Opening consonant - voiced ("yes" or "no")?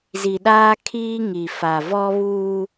yes